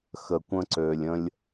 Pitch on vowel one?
low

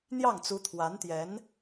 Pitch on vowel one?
falling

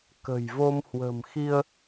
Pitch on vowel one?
low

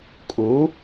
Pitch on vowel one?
rising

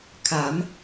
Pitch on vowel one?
rising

